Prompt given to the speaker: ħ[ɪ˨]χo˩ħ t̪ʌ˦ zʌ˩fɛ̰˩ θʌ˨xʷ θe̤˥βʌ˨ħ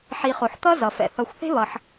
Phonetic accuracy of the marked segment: incorrect: i˨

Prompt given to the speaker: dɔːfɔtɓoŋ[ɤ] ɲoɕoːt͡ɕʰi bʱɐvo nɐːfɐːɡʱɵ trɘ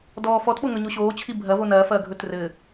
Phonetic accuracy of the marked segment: incorrect: ɵ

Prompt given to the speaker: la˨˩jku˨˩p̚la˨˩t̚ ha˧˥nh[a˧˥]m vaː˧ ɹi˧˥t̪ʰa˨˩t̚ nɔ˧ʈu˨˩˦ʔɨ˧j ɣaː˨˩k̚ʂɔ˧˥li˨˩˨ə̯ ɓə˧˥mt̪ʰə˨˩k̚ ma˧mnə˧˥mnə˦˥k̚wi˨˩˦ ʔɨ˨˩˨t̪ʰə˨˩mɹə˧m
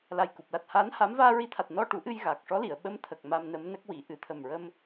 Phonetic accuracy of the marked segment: correct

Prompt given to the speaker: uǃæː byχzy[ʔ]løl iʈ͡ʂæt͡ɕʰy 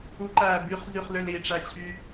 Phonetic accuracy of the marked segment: incorrect: χ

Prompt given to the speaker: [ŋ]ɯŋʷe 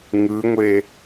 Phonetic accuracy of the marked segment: correct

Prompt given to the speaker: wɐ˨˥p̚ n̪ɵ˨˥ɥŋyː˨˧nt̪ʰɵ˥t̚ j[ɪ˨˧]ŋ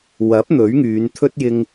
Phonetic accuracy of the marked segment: incorrect: ɪ˧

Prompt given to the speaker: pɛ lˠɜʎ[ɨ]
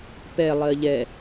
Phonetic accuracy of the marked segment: incorrect: ɛ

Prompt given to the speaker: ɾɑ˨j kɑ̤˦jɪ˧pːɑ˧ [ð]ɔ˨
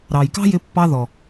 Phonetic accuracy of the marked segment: correct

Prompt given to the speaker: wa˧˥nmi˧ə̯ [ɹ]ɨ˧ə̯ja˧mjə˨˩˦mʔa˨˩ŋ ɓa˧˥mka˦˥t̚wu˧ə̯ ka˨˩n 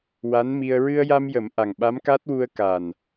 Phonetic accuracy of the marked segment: correct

